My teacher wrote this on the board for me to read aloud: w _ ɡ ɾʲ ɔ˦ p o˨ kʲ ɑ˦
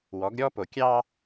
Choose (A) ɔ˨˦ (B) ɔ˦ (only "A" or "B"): A